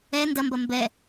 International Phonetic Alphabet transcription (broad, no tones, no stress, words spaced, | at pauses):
ɛ ndɐmbɐ mbɛ